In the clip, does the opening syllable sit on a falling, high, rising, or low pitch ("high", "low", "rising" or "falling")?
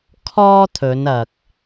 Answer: high